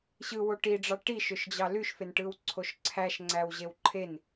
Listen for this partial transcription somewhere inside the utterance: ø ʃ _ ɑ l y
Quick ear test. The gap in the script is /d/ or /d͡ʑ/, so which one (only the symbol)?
d͡ʑ